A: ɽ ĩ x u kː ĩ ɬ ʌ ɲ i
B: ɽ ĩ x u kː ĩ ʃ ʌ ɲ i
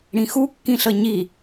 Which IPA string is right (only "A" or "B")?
A